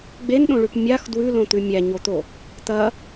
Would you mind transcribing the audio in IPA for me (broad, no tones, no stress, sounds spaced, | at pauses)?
ɡ͡b e n ɗ õ ɭ ʉ p mʲ a x d w ʉ l õ t̪ ʉ mʲ æ ɲ o t̪ o | t̪ ɐ